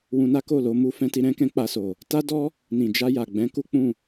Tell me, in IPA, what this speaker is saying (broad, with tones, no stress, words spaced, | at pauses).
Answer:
wũ˧na˦ko˦˨lo˧ mu˧fɛ̃˧ ti˧ɾɛ̃˦kɛ̃˦ k͡pa˧so˨ | ta˦dɔ˦ | nĩ˨d͡ʒa˧ja˨ɡ͡bɛ̃˨˦ ku˦k͡pũ˦˨